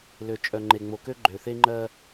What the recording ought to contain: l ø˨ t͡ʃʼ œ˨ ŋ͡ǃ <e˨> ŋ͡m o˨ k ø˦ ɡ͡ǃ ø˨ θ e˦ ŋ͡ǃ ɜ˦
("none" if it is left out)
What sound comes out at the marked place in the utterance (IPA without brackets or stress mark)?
e˨